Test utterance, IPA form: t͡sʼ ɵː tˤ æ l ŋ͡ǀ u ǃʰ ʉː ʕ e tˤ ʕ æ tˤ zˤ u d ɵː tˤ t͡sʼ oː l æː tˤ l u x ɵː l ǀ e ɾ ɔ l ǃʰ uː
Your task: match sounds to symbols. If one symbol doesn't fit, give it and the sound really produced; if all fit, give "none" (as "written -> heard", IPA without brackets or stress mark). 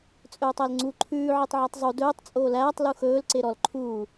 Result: none